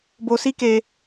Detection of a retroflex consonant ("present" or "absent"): absent